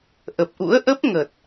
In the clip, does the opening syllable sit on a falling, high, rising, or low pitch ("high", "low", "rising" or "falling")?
low